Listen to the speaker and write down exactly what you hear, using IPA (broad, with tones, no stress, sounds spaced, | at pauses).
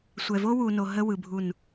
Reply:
sʷ ɛ˨ v o˦ w u˨ n o˨ ɦ ə˦ w ɯ˨ bʱ u˦˨ n